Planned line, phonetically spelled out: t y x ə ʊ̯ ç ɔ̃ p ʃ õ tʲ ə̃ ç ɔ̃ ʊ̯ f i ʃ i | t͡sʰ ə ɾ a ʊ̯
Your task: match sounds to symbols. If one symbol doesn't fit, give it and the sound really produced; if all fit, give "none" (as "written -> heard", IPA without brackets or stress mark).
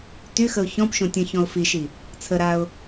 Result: none